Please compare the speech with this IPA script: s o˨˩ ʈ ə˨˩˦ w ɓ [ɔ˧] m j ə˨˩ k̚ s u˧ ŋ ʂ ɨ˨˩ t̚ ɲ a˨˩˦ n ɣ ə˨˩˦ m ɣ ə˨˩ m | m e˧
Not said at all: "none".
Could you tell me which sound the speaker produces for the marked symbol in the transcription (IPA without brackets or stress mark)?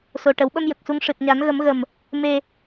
ə˧